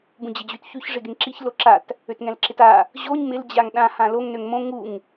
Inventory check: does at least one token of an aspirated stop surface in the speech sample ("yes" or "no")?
no